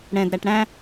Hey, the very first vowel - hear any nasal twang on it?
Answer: yes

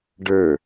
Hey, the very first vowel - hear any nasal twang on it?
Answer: no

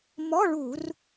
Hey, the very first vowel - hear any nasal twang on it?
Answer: no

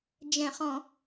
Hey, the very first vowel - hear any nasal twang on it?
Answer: yes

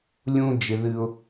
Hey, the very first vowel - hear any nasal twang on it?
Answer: yes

